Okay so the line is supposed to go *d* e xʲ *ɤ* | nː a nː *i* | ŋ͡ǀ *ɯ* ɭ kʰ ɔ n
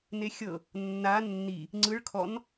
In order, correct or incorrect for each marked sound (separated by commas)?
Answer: incorrect, correct, correct, correct